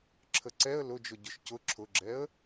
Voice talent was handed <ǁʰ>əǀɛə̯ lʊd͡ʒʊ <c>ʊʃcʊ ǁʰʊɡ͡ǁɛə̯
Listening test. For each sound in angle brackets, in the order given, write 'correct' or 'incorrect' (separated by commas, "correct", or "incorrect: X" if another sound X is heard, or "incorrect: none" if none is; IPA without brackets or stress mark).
correct, incorrect: ɟ